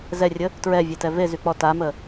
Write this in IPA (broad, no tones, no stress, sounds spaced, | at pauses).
z ɛ rʲ ə | t ɹ ɛ vʲ e t ɛ v e z y k͡p ɔ t a m ə